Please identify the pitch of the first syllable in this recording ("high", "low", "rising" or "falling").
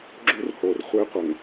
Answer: high